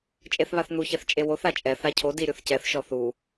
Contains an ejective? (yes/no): yes